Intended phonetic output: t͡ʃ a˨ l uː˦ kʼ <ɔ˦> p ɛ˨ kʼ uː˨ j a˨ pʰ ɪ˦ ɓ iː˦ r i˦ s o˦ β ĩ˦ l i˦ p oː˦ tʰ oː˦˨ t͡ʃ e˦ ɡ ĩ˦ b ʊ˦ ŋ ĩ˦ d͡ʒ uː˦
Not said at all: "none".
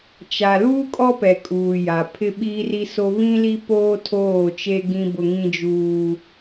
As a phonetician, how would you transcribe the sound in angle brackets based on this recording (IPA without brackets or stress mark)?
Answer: ɔ˦